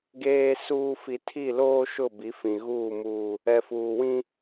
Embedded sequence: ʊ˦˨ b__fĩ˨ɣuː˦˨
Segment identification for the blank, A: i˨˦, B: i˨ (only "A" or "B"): A